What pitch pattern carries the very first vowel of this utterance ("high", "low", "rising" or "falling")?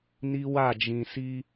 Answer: high